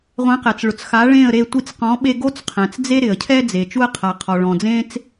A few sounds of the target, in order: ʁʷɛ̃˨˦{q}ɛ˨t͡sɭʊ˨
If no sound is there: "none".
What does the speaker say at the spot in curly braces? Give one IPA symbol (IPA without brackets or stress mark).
q